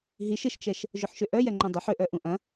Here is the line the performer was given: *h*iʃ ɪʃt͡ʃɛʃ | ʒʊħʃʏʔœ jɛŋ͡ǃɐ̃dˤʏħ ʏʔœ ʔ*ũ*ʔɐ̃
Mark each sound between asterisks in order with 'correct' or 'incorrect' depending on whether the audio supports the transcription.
incorrect: ɦ, correct

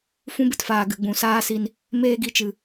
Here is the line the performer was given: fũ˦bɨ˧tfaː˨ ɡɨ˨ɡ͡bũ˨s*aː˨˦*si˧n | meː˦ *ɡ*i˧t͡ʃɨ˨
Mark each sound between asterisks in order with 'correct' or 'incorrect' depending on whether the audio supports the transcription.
incorrect: aː˦, correct

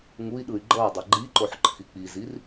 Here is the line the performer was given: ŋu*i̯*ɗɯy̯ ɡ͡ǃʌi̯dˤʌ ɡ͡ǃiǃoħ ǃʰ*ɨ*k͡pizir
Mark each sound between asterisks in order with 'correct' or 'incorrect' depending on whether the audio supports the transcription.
correct, incorrect: i

